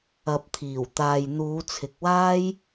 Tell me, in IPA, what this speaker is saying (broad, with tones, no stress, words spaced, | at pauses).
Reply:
ɐ˨p̚t̪ʰiː˨˩w t̪aː˨jn̪uː˨˧t͡sʰɪ˨k̚waː˥j